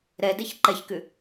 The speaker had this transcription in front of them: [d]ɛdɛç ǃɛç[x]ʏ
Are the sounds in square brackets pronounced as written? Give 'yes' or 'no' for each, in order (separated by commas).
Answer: no, no